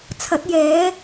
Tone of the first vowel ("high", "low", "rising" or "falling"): rising